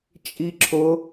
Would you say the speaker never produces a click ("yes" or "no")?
no